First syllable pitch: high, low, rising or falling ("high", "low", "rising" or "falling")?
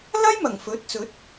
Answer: high